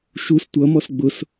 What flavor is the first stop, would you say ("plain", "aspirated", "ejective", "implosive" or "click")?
plain